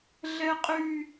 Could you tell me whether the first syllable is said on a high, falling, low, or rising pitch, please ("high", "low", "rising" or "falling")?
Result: high